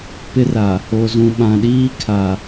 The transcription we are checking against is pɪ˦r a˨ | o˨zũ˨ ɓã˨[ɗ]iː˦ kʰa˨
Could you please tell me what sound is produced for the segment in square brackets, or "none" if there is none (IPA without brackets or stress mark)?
ɗ